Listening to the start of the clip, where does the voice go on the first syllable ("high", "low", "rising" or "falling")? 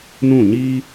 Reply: falling